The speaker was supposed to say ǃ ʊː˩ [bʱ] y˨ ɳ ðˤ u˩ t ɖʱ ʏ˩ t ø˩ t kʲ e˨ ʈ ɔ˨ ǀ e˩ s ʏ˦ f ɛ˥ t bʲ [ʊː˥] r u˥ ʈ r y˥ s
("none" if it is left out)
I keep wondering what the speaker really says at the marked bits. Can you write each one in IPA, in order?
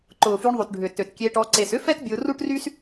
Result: f, ʊː˨

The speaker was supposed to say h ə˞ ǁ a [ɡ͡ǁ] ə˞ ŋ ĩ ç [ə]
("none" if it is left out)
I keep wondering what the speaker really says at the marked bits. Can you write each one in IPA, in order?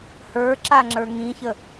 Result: ŋ͡ǁ, ə

